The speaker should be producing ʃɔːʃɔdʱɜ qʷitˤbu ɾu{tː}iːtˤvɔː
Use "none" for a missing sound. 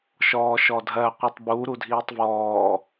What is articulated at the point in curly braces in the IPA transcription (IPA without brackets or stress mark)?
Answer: dʱ